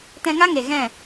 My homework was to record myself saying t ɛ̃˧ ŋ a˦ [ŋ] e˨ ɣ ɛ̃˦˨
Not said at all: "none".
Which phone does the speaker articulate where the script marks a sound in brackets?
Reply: ŋ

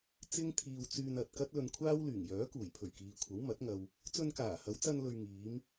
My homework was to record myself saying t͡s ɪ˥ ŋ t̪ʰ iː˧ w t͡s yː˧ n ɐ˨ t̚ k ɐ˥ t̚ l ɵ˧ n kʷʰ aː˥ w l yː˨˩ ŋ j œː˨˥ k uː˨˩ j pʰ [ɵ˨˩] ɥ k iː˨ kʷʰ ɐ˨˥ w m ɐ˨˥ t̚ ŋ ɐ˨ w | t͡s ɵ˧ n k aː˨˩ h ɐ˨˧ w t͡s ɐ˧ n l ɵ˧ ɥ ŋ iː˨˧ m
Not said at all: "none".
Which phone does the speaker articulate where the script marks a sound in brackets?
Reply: ɵ˨˩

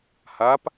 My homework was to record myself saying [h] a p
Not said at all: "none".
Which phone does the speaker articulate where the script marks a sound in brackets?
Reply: h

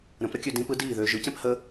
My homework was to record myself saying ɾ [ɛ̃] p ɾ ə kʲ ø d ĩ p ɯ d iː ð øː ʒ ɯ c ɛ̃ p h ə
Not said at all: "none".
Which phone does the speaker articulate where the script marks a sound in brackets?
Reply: ə̃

